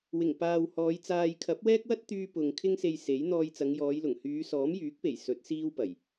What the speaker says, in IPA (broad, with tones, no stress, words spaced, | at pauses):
wɪ˨˩ŋ paː˨w hɔː˨˧jt͡saː˧j kʰɐ˨˥p̚wɛː˥k̚wɐ˥t̚t̪yː˧ pʊ˨ŋ kʰɪ˥ŋse˧jse˨˥j n̪ɔː˧jt͡sɐ˨˧ŋjɔː˨˧jlʊ˨˩ŋ hyː˨˧sɔː˨˥mjyː˨˥k̚pe˨˩j sɵ˨˥t̚siː˥w pɐ˨˩j